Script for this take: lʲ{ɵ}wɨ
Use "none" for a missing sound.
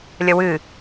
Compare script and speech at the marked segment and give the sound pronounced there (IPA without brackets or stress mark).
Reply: ə